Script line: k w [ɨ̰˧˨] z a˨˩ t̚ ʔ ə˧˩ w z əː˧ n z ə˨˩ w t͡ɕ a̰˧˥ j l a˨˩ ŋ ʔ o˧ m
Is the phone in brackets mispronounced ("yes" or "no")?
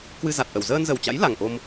yes